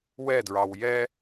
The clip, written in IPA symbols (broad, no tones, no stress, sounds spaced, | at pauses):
w ɛ d ɹ ɑ w j ɛ